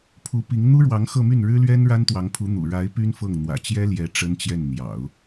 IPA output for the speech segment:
pʰ u˧˥ p i˧˥ ŋ n̪ u˥ ɻ w ɑ˧˥ ŋ x ɤ˥˧ m y˥˩ n ɻ ɻ̩˥ l ɥ ɛ˥ n ɻ a˥ n t̪ w ɑ˧˥ ŋ pʰ u˧˥ n̪ ṵ˨˩ ɻ a˧˥ ɪ̯ p y˥ n f ɤ˥˩ ŋ n̪ w ä̰˨˩ t͡ɕ j ɛ˥ l j ɛ˧˥ ʈ͡ʂ ə˥ n t͡ɕ j ɛ˥˩ n n̪ j ɑ̰˨˩˦ ʊ̯

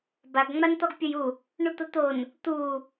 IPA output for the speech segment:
b a ɡ ŋ͡m a n t̪ ɔ ɡ pʲ ʊ j u | ɳ u t̪ ʊ t̪ o n | t̪ u

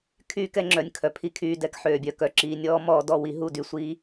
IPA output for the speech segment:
kʰ yː˧ k ɛ˧ ŋ͡ǁ œ˨ nʲ kʰ œ˨ pʰ i˦ kʰ yː˧ d ɛ˧ k ħ øː˨ bʲ œ˨ k œ˨ ǁ iː˨ nʲ ɔː˦ m ɔː˧ d ɔ˦˨ w i˧ ɦ u˦˨ d y˦˨ sʷ iː˦

